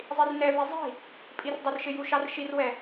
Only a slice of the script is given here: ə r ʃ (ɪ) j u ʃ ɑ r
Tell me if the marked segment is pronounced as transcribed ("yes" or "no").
yes